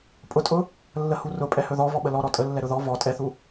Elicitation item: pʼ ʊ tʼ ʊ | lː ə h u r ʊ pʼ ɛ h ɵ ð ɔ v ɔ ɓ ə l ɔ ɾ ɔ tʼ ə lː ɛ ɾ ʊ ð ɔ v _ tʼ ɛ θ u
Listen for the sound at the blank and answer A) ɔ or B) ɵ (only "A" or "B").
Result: A